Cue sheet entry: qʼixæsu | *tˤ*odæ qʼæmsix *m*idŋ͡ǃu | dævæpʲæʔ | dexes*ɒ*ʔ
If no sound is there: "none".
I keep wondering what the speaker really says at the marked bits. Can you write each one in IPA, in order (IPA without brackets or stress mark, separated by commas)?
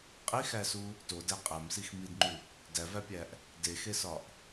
t, m, ɒ